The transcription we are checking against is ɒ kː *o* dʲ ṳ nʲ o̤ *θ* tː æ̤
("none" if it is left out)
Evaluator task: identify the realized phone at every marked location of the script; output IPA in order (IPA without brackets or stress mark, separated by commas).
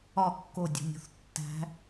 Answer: o, θ